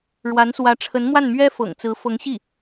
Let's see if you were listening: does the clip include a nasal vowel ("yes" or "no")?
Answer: no